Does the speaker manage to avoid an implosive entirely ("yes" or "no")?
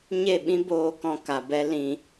no